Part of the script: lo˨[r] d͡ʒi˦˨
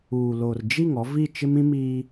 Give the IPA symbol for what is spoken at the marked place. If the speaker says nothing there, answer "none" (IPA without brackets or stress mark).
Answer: r